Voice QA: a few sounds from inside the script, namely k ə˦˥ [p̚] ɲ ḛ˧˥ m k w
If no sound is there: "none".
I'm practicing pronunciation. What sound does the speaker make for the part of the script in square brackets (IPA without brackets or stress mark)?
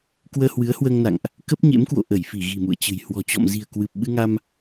p̚